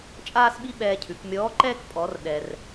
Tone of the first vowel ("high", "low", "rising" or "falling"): high